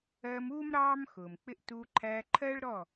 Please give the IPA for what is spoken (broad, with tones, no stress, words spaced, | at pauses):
ɜː˧muː˦m ɾɑː˦m xʊː˨mk͡pɪ˦ʔ tuː˧ǃʰæː˧ǃʰɜː˦ɭ ɾɔ˦˨